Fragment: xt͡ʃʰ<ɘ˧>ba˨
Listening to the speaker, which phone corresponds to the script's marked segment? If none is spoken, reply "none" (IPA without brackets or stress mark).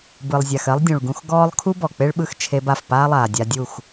e˧